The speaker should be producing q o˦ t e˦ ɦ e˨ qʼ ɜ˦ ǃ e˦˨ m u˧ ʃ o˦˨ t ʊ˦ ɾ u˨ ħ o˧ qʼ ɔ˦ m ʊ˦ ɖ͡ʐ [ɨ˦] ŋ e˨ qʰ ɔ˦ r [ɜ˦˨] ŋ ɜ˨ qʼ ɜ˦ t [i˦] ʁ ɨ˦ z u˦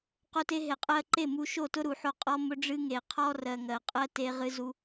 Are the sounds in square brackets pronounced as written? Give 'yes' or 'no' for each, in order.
yes, no, no

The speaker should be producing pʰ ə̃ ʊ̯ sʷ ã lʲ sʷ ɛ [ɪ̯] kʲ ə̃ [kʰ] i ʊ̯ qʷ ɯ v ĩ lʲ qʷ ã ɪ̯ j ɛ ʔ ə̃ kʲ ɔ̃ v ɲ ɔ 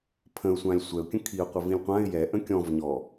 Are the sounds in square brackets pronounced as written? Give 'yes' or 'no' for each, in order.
no, yes

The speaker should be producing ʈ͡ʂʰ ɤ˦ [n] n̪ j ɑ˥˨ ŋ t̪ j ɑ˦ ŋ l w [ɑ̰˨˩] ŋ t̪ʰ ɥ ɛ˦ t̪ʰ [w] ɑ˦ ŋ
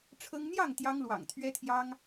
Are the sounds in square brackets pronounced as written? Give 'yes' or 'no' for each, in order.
no, yes, no

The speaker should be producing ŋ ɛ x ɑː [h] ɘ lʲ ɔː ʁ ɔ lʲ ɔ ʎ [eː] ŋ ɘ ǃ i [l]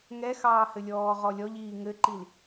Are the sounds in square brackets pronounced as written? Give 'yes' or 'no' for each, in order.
yes, no, yes

